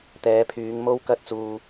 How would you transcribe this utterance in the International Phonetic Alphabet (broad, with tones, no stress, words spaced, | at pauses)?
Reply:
t̪ɛː˨˧pʰyː˨˧ŋ mo˥wkɐ˥t̚t͡suː˧